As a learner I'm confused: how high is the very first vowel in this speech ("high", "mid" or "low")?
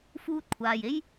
high